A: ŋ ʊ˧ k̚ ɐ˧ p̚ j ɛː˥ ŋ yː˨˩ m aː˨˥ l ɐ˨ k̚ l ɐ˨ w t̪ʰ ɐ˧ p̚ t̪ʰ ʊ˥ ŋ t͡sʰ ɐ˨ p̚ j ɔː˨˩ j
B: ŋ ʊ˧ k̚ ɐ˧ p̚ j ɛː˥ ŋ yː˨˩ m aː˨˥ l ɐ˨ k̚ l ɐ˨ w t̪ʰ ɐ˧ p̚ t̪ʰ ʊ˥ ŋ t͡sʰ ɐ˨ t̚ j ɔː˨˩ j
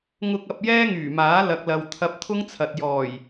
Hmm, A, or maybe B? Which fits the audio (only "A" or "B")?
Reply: B